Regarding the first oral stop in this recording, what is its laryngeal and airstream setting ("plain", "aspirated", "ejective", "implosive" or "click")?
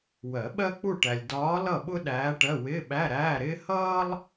implosive